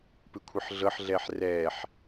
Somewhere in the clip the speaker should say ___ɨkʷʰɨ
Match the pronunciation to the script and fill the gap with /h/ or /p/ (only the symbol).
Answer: p